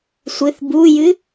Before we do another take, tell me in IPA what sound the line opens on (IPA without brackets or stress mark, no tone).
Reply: sʷ